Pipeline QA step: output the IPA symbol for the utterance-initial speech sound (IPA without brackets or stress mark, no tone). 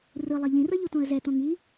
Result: r